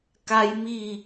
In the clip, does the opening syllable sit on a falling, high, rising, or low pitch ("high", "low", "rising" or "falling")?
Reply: high